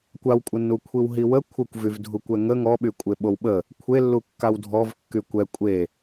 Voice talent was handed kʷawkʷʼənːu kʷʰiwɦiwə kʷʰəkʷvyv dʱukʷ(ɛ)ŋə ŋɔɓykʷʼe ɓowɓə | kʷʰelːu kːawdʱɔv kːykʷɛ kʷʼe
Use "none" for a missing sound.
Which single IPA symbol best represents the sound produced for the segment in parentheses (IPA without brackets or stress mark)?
ɛ